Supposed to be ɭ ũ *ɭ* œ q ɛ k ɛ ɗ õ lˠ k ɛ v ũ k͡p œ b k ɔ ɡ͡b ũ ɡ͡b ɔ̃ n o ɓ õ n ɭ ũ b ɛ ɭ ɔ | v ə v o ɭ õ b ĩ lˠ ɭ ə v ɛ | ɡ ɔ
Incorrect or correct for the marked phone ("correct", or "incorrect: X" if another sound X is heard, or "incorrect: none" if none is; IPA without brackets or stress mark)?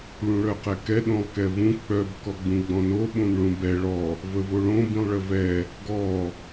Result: correct